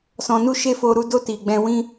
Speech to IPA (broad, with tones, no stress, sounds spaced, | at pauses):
s ɔ̃˧ n u˦ ʃ e˦ f o˧ ɾ u˧ d o˧ t i˨ ɡ͡b ɛ̃˧ w ĩ˦